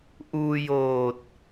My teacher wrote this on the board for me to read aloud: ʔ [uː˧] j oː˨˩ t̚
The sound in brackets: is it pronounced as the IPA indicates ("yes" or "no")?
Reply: yes